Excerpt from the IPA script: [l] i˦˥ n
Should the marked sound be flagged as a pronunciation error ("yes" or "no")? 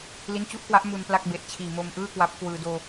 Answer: no